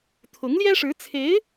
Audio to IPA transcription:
t̪ʰʊ˧˥ŋljɛ˥ʂɻ̩˧˥t͡sʰe˧˥ɪ̯

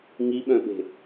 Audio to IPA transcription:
ŋiɓœ̃ɓe̤

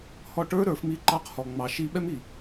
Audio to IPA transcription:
hɔ˧ʈə˞˦ ɾə˞˨˦fmi˦ ǃɑ˧qhɔ˨ŋ͡mɑ˨ ʃi˧ɓɛ˦mi˨

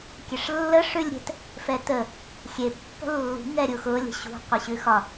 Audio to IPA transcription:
kʲɛʂlːə ʂʉlʲɾʲɛ̤t | fɛtə | xʲe pːə̤lːṳ ŋɛɾʲuxʊ lʲə̤ɕṳ qʷɪɕʉxɒ

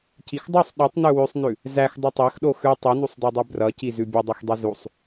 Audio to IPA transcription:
cixdˤusˤ ɗutˤnʉ wʉsˤnʉ | zæx dˤʌtˤæxɗo xʉ tˤʉnusˤdædˤʉ brʌci zʉbʲʌdˤox dˤizusˤ

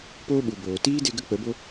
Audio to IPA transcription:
poː˦ ɓu˨boː˨ tiː˦de˧ ɡə˦ k͡pə˨˦bo˦

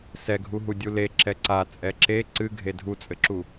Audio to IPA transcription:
sɛɡʱuɦu dʲule ǁɛǀa t͡sʼɛǁe ǀɨ ɡʱedʱut͡sʼɘǁu

